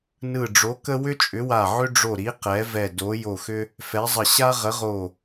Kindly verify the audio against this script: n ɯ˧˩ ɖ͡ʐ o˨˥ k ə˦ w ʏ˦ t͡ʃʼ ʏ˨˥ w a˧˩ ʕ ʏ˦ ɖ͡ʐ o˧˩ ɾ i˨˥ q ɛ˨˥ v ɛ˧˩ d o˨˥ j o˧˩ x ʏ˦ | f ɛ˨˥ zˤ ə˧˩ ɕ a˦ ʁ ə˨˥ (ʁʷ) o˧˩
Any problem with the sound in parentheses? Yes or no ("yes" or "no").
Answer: yes